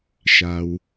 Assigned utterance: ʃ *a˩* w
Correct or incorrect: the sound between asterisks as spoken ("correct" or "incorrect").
correct